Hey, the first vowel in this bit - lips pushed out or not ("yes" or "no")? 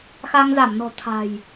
no